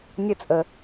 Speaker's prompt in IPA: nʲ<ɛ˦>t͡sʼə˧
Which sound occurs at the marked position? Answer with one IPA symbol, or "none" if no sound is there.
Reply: ə˦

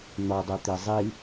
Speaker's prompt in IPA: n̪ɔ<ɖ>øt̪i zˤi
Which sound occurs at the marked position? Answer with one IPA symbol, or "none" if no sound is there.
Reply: dˤ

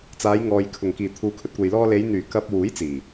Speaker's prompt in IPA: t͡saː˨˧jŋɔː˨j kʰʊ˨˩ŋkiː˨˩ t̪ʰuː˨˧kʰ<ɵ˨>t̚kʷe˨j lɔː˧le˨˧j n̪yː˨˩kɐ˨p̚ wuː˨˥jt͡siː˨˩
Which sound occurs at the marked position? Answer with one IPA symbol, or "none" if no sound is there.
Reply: ɵ˧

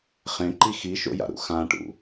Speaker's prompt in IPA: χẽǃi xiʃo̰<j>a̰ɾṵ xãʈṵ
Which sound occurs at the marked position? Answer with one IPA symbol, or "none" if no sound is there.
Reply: j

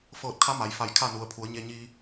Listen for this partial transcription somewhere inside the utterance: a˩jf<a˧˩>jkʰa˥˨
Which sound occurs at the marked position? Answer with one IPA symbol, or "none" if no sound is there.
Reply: a˧˩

